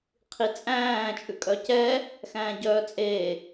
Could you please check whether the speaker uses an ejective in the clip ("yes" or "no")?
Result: yes